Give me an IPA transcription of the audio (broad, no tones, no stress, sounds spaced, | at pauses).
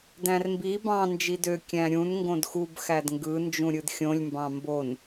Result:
d æ̃ r m b i b ɑ̃ n d͡ʒ i d ø kʲ æ̃ ɾʲ ũ n ŋ ɡ õ d x u b x æ d ŋ ɡ ɯ n d͡ʒ ũ ɾʲ ɯ d xʲ õ lʲ m b ɑ̃ m b o n